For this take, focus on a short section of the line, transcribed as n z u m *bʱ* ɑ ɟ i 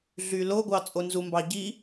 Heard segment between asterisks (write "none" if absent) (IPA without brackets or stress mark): b